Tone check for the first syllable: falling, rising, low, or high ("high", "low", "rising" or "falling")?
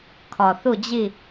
low